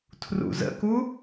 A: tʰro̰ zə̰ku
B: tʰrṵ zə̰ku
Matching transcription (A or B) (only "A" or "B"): B